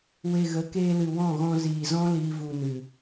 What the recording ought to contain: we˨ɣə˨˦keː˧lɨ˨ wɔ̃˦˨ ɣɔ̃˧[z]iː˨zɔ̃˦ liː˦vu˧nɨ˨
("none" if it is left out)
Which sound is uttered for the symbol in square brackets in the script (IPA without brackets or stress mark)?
z